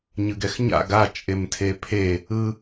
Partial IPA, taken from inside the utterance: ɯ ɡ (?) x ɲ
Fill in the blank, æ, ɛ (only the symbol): ɛ